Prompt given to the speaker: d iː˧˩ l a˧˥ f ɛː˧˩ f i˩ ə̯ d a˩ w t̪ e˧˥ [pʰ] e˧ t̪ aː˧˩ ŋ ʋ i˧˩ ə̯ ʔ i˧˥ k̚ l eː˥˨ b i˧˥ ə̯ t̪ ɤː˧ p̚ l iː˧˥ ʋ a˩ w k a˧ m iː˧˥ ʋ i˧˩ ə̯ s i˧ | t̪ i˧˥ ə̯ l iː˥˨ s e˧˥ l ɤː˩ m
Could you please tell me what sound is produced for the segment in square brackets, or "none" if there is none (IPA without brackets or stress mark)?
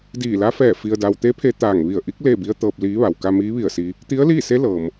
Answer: pʰ